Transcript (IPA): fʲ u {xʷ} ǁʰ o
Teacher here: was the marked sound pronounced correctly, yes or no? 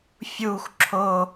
yes